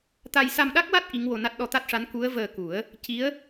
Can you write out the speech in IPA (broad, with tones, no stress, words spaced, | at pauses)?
t̪a˧j sa˧mɗa˦˥k̚wa˦˥t̚ ʔi˧˥ŋwo˧na˦˥t̚ ɗɔ˧t̪a˦˥t̚ʂa˧˥n ku˧˥ə̯vəː˧ku˨˩˦ə̯ | ci˧˥ə̯